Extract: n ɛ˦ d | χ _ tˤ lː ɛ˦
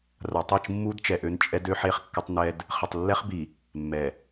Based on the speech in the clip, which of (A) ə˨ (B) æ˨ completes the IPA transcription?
A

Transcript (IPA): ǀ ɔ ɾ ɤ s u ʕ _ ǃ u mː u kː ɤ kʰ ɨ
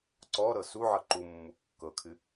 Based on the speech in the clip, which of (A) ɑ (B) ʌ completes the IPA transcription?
B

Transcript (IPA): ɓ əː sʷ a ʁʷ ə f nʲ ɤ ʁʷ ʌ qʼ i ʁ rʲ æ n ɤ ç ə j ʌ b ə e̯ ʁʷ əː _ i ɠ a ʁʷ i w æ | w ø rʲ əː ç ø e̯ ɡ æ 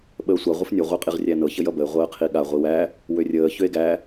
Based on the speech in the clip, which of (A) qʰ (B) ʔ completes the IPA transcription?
A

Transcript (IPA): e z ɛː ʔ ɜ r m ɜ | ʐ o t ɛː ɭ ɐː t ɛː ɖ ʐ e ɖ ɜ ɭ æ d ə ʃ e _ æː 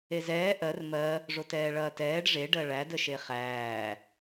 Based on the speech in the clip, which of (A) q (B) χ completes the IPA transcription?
B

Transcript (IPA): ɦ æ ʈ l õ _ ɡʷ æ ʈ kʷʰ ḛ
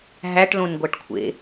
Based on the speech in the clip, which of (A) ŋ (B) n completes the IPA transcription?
B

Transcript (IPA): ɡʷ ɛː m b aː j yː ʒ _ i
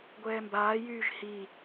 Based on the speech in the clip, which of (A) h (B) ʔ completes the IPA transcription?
A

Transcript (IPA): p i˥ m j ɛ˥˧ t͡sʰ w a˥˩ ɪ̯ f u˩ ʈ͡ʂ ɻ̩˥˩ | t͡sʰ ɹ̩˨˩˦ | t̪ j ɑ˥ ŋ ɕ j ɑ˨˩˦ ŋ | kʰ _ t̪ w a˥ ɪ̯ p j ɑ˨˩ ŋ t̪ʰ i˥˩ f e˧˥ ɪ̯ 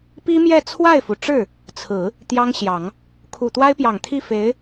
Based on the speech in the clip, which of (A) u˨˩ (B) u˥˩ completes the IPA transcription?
A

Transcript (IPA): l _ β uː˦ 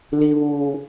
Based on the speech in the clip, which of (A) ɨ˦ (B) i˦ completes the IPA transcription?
B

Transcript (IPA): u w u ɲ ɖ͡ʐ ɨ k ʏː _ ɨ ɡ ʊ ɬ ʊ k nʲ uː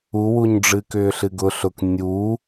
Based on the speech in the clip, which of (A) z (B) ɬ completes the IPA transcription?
B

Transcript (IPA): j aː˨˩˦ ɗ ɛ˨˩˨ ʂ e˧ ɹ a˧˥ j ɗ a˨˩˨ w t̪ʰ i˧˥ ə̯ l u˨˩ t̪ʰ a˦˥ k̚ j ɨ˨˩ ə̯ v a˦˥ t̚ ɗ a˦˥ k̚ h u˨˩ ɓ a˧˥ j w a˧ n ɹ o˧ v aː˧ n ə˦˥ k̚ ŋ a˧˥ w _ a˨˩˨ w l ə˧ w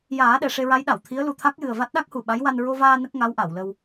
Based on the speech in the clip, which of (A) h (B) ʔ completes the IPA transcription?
B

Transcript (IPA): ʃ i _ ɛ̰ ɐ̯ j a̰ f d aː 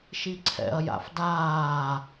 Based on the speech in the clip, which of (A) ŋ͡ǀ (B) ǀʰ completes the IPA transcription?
B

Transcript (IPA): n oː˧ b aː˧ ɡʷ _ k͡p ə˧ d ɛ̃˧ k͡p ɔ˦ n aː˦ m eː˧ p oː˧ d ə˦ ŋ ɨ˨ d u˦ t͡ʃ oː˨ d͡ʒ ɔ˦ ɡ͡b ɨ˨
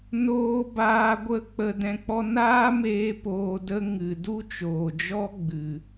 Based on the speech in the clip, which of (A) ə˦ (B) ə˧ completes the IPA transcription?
A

